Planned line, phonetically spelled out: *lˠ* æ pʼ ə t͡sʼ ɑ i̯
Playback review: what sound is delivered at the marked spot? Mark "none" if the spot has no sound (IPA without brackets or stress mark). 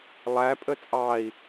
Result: lˠ